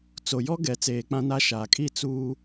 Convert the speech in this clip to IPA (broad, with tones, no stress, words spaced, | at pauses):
t͡so˨jɔ˦ ɡɛ˨t͡seː˨ k͡pã˦na˦ ʃa˨kʼi˦˨ t͡suː˦